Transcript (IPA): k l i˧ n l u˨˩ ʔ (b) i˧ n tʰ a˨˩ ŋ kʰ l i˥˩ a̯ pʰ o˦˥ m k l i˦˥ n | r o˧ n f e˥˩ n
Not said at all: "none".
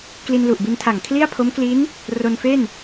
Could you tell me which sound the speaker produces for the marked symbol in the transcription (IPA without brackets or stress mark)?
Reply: b